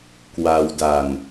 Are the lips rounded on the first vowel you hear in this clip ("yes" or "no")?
no